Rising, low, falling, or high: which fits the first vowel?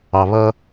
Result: low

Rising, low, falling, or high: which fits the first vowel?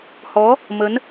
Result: rising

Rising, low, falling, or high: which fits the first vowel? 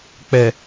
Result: low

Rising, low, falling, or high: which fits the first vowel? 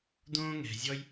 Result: high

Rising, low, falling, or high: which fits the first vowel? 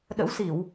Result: rising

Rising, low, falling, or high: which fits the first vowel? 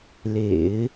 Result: low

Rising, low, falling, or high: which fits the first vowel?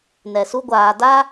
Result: low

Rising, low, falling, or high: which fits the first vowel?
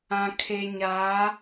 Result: low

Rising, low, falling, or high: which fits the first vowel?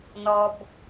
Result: low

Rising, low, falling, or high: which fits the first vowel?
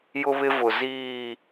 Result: high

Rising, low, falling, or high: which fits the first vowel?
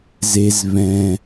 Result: low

